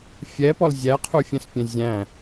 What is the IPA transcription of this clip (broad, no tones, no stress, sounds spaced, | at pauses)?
fʲ ɛ p ɔ l zʲ æ qʰ u fʲ ɛ̃ s pʲ ɛ̃ zʲ æ̃